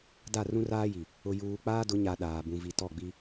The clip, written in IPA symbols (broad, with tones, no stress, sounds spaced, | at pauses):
d a˦˨ r ũ˦ r aː˦ j i˨ | ʊ˨ j uː˨ k͡p aː˦ d ʊ˨˦ ɲ a˨ ɗ aː˨ b ũ˨ v i˨ t ɔ˦˨ ɡ͡b i˦